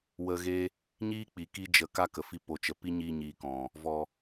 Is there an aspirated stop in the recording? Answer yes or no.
no